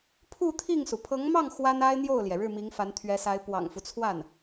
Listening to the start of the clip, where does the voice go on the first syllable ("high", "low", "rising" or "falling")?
falling